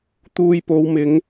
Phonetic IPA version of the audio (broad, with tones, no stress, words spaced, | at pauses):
t̪uː˧jpo˨˧wmɪ˨˧ŋ